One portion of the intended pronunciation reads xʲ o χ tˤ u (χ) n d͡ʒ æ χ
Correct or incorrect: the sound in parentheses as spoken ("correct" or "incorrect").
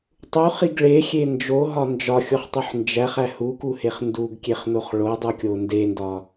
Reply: incorrect